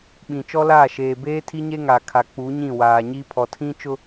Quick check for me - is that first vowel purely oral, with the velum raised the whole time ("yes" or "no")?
no